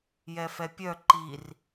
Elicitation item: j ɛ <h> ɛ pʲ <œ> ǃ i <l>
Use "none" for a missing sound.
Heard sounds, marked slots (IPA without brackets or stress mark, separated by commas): f, œ, r